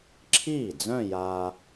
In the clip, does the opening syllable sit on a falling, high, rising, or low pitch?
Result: falling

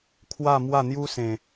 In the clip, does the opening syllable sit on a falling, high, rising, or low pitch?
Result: falling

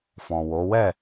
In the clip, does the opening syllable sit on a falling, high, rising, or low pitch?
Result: low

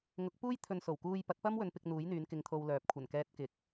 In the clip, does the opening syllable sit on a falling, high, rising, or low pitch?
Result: rising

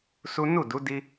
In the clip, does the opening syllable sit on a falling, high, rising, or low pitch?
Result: high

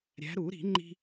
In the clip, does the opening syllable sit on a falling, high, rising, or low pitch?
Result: rising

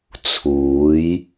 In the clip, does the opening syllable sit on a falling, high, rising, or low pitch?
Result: rising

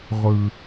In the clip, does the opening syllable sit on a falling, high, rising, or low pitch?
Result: low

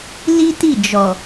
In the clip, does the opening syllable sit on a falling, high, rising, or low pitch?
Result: high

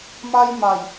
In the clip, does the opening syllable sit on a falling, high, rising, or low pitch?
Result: high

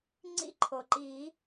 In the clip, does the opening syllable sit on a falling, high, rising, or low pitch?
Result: high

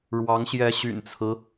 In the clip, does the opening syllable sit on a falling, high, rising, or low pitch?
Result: rising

